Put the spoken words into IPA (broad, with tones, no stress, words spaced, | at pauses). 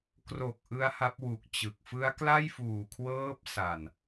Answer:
kro˨˩k̚ ʔɯ˦˥a̯ha˦˥p̚wu˨˩k̚t͡ɕɯ˨˩k̚ fɯ˦˥a̯kla˥˩jfuː˨˩kʰwɤː˦˥p̚ sa˨˩n